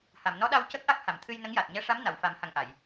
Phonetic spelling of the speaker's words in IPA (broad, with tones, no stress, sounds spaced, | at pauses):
h a˨˩˨ m n ɔ˧˥ ɗ a˧ w c ə˦˥ k̚ ʔ a˦˥ k̚ h a˨˩˨ m t̪ʰ ɨ˧ j n ə˧˥ ŋ j a˨˩ t̚ ɲ ɛ˧˥ ʂ a˧˥ m n a˨˩˨ w f a˨˩˦ m h a˨˩ ŋ ʔ a˨˩˨ j